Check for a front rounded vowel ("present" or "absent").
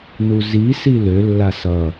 present